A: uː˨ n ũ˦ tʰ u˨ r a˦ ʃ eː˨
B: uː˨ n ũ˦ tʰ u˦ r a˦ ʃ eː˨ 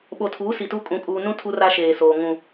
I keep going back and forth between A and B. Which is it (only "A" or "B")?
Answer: B